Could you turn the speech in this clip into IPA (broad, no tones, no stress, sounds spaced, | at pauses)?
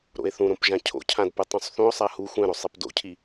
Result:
ɾ o̰ e̯ θ ũ ɾ õ p ʒ ã cʰ o̰ cʰ ã d p ɯ tˤ ũ sˤ θ ũ o̯ sˤ a h u xʷ ɛ̃ ɾ o sˤ ɛ p d o̰ cʰ i